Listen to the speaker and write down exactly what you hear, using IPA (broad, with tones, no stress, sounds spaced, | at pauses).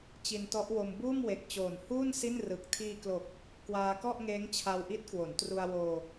t͡ɕ i˧ n t ɔ˦˥ ʔ w o˧ m b uː˥˩ m w e˨˩ k̚ t͡ɕ oː˨˩ n h uː˥˩ n s i˥˩ n r ɯ˨˩ k̚ tʰ iː˧ k l o˨˩ k̚ | k w aː˧ k ɔ˥˩ ʔ ŋ eː˦˥ ŋ t͡ɕʰ a˧ w ʔ i˦˥ t̚ k w o˩˦ n t r u˧ a̯ w oː˧